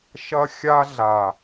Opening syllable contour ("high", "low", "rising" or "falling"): high